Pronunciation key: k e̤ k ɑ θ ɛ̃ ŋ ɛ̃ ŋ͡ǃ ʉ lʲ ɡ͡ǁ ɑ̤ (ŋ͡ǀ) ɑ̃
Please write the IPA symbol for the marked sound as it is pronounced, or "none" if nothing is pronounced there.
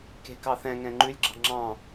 ŋ͡ǁ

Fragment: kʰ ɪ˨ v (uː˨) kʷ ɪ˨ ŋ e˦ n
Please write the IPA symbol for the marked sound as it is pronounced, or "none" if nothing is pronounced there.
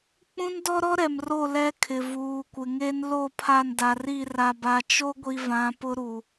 uː˨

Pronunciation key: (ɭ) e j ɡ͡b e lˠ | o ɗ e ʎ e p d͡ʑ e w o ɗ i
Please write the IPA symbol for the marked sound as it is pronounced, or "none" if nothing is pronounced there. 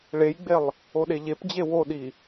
ɭ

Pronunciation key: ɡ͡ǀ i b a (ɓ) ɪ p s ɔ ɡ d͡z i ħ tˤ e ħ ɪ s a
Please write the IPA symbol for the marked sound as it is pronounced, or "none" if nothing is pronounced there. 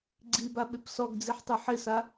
ɓ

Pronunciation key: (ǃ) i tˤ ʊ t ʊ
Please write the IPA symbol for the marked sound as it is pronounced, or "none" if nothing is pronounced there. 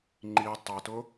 ŋ͡ǃ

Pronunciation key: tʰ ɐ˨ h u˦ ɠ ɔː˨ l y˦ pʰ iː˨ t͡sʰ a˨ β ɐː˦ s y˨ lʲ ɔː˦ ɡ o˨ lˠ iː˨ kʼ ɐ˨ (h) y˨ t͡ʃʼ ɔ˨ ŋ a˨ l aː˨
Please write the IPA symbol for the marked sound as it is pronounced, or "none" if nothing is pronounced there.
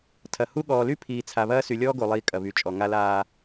β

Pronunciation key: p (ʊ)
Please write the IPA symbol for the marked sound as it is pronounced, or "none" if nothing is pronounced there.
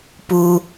u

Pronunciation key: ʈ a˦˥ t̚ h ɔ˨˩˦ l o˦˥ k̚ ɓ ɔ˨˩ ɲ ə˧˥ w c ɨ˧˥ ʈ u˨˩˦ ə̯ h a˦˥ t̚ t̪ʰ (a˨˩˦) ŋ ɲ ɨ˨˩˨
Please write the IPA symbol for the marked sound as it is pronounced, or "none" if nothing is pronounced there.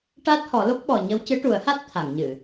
a˨˩˨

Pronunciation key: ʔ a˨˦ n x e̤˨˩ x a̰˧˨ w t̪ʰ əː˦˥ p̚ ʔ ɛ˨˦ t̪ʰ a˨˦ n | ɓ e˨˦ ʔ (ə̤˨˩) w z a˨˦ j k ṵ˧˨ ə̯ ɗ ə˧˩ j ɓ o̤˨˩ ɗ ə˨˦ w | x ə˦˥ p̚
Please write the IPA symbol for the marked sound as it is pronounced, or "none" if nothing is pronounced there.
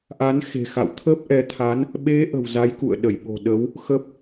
ə̤˨˩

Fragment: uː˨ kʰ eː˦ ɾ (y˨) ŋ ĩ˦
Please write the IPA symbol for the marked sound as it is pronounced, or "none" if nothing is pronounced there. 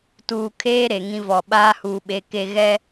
e˨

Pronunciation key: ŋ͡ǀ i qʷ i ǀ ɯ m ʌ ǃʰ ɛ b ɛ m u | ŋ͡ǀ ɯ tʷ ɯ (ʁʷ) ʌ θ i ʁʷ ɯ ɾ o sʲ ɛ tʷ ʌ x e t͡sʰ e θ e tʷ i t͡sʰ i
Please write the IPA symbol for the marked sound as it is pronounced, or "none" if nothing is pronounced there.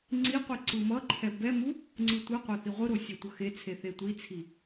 qʷ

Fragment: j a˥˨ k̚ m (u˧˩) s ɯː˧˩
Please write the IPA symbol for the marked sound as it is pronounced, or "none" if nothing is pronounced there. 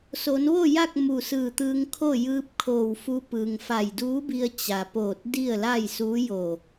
u˧˩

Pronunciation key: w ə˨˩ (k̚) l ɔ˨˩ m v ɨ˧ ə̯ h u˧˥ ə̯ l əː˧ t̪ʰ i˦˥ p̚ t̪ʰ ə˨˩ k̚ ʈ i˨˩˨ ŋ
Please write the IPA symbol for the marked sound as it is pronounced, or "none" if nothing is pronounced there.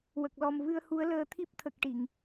k̚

